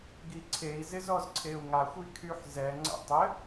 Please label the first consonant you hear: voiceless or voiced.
voiced